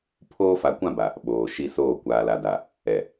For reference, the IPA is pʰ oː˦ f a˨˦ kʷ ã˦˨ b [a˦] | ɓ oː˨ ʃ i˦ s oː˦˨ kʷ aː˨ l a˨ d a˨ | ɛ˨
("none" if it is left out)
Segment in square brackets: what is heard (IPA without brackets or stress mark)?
a˨